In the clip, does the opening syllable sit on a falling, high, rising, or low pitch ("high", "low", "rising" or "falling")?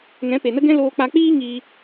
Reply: rising